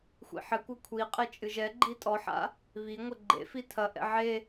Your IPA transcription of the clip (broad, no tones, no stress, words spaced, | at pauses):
xʷḭħɘkʷɘ kʷʰiqʼe t͡ʃʼɨʒɛɡ͡ǃi tʼɔħa̰ | βi ŋʷɛɡ͡ǃḛfi tʰɐʔɛ̰ ʕe